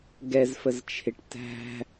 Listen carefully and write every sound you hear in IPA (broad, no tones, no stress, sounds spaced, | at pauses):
ɡ ɛ z f ə z t͡ʃʰ ɪ ʈ t æ̤